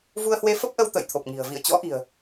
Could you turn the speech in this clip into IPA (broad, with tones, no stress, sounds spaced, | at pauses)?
v u˧ ə̯ h w e˨˦ f ə˦˥ p̚ ʔ ə˧ w t̪ ə̰ː˧˨ j t̪ʰ o˨˩ p̚ ŋ i̤˨˩ ə̯ v ḭ˧˨ ə̯ t͡ɕ ɔ̰˧˥ ʔ i̤˨˩ ə̯